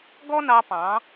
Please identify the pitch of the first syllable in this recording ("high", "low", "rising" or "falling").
high